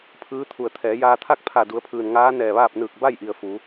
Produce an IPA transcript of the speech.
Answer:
pʰ ɯː˧˥ t̪ʰ u˧˩ ə̯ t̪ʰ ɛː˩˧ j aː˧ t̪ʰ a˥˨ k̚ pʰ a˧˩ d u˩˧ ə̯ pʰ ɯː˩ n ŋ aː˧˥ n ɛː˧˩ ʋ aː˥˨ p̚ n ɯː˧˩ k̚ b a˥˨ j ʔ i˩ ə̯ f u˩˧

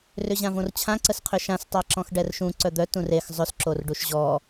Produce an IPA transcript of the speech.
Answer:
r ʏ ʑ ã v õ r t͡ɕʰ ã ǀ ə s qʰ ʏ ʃ ã s tˤ a ǁ ɔ̃ x ɖ ɛ r ʃ ũ ǀ œ d̪ œ t ũ r e x zˤ ʏ s ǁ o r ɖ u ʃ ʑ ɔ

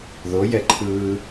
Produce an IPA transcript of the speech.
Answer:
ð o j ɛ ǃʰ ɯː

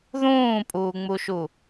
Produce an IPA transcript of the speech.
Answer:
ð ũː pʼ uː ŋ͡m u ʃ u

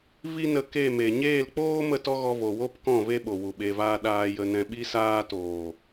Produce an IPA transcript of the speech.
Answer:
v i˦ n ə˧ k e˦˨ m e˨ ɲ eː˦˨ l k͡p oː˦ m ə˦˨ t ɔ˦ ɣ ɔ˧ v o˨ w o˦ p k ɔ̃˦˨ v e˦ ɓ o˨ w u˨ ɓ e˧ v aː˦ ɗ aː˧ j ə˧ n ɛ̃˧ ɓ i˧ s aː˧ t oː˨

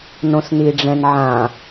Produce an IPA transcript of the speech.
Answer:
n õ s n i ɖ͡ʐ ɛ̃ n ʕ ã

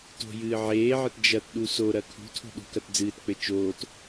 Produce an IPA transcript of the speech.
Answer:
t o̤ j ɨː ʕ eː ʕ ɘ t d͡ʒ ɐ t ɗ u s o ɾ ɐ kʰ ṳ tʰ o̤ ɗ ṳ k ɐ t d͡z ɨː t k͡p ɘ t͡ʃ oː t

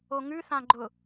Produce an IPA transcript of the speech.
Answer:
o ŋ ʉ θ ã ɡ͡ǃ ʊ

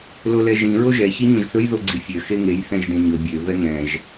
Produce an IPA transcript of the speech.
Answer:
l o l ɛ ʒ ĩ ɹ o ʒ ɛ ç i ɲ õ ʒ θ ɵ j ð o ɡ͡ǀ i fʲ ø x e ŋ e j θ ɛ̃ ʒ d ẽ ɲ ɵ bʲ ø v ɛ ŋ ɛ̃ ʒ

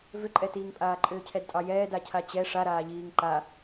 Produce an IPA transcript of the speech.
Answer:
v ʏ ǃʼ ɛ t iː ŋ pʼ aː ǃʼ ʏː cʰ ɛ d tʼ ɑ j ɛː d a cʰ a t͡ɕ ɛ ʂ a ɾ aː ʎ iː ŋ ǃ a

